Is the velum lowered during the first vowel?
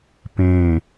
yes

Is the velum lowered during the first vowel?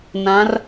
yes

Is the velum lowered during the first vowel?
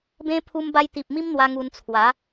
yes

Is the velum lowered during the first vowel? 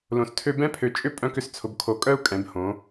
yes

